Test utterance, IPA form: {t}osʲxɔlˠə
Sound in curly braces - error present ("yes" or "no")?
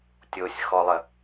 yes